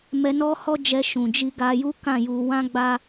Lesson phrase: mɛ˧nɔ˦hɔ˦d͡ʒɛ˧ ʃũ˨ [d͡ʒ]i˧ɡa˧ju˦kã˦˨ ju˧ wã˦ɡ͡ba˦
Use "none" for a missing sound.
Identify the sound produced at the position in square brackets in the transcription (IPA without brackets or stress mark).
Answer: d͡ʒ